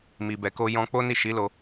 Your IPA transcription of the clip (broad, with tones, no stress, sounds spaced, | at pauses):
m i˨ b ɛ˨ k o˧ j ɔ̃˧ k͡p o˦ n i˦˨ ʃ i˨˦ l o˧